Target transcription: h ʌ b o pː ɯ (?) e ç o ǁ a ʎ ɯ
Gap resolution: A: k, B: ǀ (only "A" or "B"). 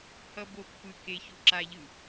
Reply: A